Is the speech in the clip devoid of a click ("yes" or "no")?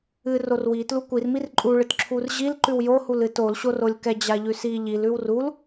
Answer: no